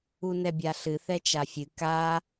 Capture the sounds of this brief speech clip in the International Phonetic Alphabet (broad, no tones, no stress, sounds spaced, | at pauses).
u n ɛ bʲ a ɬ ɨ θ ɛ t͡ʃ a fʲ ɨ k a